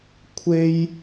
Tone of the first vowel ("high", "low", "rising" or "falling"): high